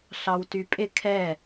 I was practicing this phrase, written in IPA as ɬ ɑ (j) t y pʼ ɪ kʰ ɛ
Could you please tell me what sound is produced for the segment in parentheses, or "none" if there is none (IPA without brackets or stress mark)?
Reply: w